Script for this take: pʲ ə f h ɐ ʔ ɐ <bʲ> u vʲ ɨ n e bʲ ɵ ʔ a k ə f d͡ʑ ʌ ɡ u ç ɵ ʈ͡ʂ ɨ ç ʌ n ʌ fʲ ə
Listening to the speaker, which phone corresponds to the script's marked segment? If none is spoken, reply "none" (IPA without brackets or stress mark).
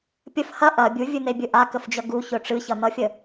bʲ